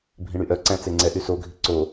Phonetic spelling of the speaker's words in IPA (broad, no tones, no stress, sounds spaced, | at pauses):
bʱ ĩ ɽ y ʔ œ ǀ æ̃ t͡s e ŋ͡ǀ ɛ ʔ y s o ɡʱ i ǀ o